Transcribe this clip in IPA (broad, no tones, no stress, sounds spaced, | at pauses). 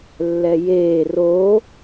lː ɛ j eː r o